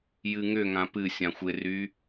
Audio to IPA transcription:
j ɨ ŋ ʏ ŋ ã p ɨ sʲ ã xʷ ɪ r y

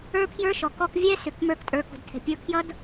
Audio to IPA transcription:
ə˞˦ pʰ j ə˞˦ ʃ ɔ˨ k ɔ˧ k vʲ ɛ˦ s ʏ˨ k m ə˞˧ k tʼ ə˞˨ k ṳ˨ d tʰ ɛ̤˨ pʲ ə˞˧ kʰ j ʌ˦ d

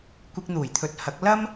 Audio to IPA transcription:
kʷ ɪ˧ k̚ n̪ uː˨˩ j t̪ʰ ɵ˨˥ t̚ h ɐ˨˥ k̚ l ɐ˥ m

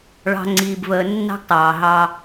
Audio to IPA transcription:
ɭ ɑ̤˨ ŋ͡ǀ iː˨ b v əː˨ nː ɑ̤˦ ɡ tˤ ɑː˨ ɦ ɑ˦

